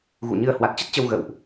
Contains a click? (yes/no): no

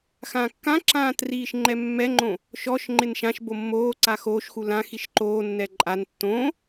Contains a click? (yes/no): yes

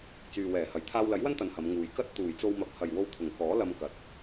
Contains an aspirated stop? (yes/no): yes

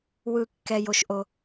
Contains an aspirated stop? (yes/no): no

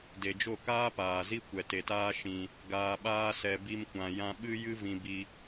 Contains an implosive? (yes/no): yes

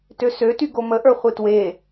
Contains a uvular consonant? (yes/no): yes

